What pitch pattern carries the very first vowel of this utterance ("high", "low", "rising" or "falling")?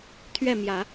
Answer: falling